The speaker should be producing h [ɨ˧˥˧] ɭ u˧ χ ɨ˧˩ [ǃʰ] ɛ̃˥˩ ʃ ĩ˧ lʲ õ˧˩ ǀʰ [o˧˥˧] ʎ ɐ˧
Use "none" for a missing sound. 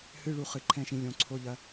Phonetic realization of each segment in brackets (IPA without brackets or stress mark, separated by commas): ɨ˧˥˧, ǃʰ, o˧˥˧